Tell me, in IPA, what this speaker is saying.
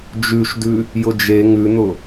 d͡ʒ ʉ ʃ d ʉ | j ʊ d͡ʒ e ŋ ʉ n̪ ʊ

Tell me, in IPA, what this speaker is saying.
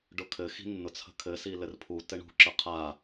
ɖ ʊ kʰ ɘ x i̤ nː ʊ t͡sʰ ə̤ kʰ ɘ s i l ɘ r pʰ u t ɘ ɳ ṳ ǁ ə qʰ a

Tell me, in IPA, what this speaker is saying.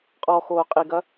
qʼ ɔ x oː qʼ i ɡ ɐ

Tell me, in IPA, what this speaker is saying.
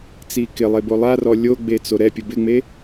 t͡s i k ɪ lˠ e b o lˠ a r ɔ lʲ o ɡ͡b e t͡s o ɾ ɛ pʲ ʊ b ɪ ŋ͡m e

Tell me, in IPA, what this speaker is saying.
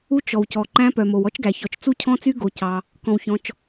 u˦˥ t͡ʃ ɔ˩ w c ɔ˩ ǃ æ̃˦˥ p œ˩ m o˩ w ɔ˦˥ t͡ʃ ɡ æ˩ ç ɔ˩ t͡ʃ t͡s u˦˥ cʰ ɔ̃˦˥ t͡s y˦˥ ɡ o˩ c ɑ˩ | k ɔ̃˩ w ç ɔ̃˩ t͡ʃ

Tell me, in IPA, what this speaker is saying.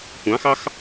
kʷ ɑ̃ x ɑ x

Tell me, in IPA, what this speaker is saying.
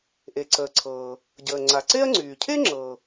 ʔ e˩ ǀ əː˩ ǀʰ ɤː˩ | ɟ əː˩ ŋ͡ǀ a˩ ǀ e˥ ɐ̯ ŋ͡ǀ yː˩ cʰ e˥ ŋ͡ǁ ɤ˩

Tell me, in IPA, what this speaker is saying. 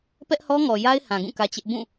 p ɛ˦ ʔ h ɔ˦ ŋ ɔ˨ j a˦ ɪ̯ h ã˨ ɡ ũ˦˨ k ä˦ t͡ɕ ɪ˦ ʔ b ũ˦˨

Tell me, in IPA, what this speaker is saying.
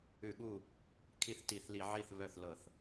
ʉ˧˩˧ ɠ u˥˩ | kʰ i˥˩ θ t i˧˩˧ θ l i˧˩˧ ʕ i˥˩ θ β œ˥˩ θ l ɤ˧˩˧ θ

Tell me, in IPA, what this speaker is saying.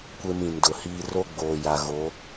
kʷ e˦ m ĩ˨ n d ʊ˨ h iː˦ r o˦ ɡ͡b oː˨ j a˨ ɣ o˨˦

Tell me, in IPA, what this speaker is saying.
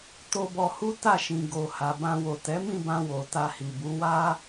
t o˧ b ɔ˧ h u˦ t a˦˨ ʃ ĩ˨ ɡ o˨ h a˨ b ã˧ w o˨ t ɛ˨˦ m ĩ˦˨ b ã˧ w o˨ t a˧ h i˨ b u˨˦ w a˦

